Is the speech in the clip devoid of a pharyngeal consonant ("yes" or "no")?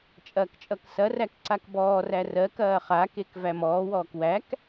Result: yes